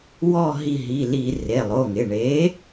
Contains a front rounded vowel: no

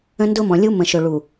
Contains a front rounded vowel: no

